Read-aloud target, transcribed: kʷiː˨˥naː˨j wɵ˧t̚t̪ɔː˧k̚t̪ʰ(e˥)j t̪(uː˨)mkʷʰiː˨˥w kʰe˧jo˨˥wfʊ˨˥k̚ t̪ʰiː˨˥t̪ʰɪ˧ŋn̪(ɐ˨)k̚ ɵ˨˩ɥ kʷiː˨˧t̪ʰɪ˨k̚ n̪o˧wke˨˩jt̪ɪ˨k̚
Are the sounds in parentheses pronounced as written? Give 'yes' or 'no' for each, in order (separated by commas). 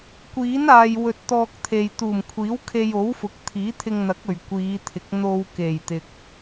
no, no, no